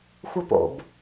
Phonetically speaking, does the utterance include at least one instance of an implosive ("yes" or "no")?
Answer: no